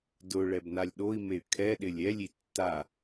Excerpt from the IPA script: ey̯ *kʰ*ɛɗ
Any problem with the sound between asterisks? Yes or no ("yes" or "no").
no